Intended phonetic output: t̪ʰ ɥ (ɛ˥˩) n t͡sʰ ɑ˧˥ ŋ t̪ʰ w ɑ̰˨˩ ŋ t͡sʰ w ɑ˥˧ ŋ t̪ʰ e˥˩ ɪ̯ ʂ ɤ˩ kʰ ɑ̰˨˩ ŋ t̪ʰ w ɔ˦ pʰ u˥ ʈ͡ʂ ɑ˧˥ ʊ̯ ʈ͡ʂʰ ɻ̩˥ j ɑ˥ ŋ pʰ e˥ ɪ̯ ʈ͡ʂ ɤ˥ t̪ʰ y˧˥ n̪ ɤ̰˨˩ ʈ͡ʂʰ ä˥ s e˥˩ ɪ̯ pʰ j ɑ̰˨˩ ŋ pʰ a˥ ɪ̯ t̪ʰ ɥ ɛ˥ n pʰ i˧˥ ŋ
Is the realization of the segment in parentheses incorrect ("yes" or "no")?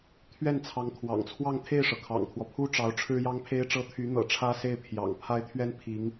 no